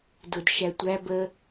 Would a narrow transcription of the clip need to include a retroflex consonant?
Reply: no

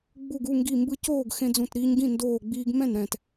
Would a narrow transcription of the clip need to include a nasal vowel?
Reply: yes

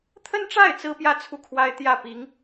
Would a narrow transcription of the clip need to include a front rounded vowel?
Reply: no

